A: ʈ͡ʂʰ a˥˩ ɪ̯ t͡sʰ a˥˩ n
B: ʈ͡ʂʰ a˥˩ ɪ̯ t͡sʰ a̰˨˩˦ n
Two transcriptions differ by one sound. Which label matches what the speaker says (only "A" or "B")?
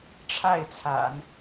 B